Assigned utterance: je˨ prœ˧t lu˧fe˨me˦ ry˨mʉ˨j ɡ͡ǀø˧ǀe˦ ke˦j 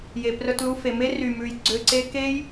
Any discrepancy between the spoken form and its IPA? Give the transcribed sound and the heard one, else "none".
none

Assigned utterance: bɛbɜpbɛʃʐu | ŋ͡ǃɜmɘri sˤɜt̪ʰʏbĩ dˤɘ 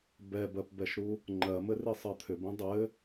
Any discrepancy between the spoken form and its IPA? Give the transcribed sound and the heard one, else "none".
ʐ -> ɾ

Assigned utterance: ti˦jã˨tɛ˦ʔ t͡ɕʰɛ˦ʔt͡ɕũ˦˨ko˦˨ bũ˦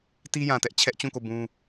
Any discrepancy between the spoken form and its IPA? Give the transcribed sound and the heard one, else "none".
none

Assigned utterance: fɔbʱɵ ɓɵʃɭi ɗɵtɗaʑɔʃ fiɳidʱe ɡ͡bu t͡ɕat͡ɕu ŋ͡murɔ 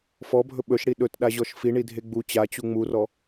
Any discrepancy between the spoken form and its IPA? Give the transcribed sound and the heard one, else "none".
ɭ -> ɽ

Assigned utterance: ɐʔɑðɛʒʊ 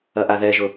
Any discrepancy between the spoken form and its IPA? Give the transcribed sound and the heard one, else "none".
ɑ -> a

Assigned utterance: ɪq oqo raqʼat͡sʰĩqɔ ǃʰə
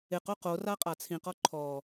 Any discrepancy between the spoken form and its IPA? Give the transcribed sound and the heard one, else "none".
ə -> ɔ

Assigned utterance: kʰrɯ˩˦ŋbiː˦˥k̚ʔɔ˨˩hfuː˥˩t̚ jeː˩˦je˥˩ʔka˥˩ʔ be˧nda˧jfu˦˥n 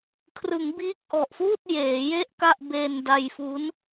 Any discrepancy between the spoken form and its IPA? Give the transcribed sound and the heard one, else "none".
h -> ʔ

